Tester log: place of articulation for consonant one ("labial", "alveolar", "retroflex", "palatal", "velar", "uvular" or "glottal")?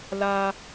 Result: alveolar